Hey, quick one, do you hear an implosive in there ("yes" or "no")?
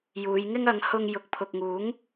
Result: no